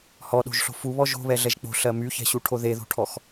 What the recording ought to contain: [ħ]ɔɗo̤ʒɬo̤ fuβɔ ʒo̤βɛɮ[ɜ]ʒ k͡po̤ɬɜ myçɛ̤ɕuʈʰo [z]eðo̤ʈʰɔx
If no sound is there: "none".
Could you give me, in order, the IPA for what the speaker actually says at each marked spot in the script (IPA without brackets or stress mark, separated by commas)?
h, ɛ, ð